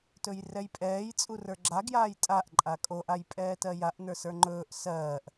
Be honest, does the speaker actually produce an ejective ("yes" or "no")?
yes